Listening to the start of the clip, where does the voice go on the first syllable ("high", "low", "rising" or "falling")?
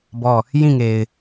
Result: falling